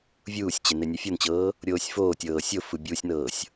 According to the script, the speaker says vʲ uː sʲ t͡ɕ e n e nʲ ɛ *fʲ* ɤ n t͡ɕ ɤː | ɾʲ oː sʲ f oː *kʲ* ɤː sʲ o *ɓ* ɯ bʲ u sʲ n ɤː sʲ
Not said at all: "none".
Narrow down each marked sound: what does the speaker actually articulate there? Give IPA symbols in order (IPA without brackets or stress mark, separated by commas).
fʲ, tʲ, f